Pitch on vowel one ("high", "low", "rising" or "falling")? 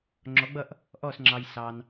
rising